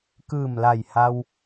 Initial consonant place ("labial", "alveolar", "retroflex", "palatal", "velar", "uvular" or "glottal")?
velar